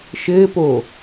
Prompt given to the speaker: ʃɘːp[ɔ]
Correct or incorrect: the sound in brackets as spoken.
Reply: incorrect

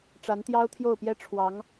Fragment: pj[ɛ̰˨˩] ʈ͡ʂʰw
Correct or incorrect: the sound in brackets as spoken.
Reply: incorrect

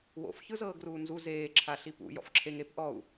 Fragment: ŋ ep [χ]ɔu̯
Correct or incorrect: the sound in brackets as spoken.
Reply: incorrect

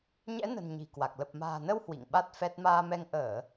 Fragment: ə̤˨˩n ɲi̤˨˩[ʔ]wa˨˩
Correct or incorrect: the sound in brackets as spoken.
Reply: incorrect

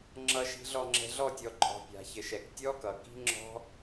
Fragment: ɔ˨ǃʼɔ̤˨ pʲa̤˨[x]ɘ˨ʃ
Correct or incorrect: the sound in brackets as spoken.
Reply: incorrect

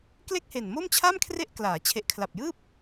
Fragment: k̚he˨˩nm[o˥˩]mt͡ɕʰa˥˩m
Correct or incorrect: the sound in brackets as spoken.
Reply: correct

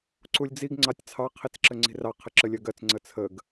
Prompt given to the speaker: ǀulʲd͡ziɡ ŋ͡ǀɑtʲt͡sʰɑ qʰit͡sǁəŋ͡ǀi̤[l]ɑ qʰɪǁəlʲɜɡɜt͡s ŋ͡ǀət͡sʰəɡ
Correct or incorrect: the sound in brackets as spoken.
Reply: incorrect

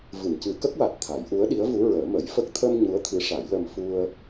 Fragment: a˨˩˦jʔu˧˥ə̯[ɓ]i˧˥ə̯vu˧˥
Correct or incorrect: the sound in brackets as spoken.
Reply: incorrect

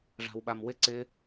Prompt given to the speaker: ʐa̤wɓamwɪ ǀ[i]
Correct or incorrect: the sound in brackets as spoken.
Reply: incorrect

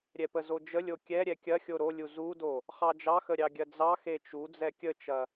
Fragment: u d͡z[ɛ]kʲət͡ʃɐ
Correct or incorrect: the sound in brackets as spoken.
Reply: correct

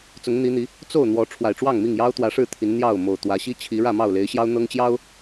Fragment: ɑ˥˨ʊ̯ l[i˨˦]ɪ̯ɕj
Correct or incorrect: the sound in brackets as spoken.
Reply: incorrect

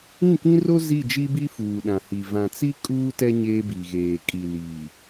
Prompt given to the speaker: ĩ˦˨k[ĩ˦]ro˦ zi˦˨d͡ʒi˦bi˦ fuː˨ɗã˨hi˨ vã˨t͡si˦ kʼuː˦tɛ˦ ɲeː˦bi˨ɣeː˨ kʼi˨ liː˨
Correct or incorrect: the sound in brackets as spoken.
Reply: correct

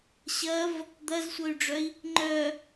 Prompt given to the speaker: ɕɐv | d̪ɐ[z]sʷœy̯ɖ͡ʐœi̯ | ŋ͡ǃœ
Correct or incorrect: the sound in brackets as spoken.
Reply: correct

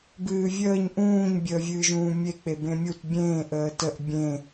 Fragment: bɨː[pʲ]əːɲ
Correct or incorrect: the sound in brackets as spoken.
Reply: incorrect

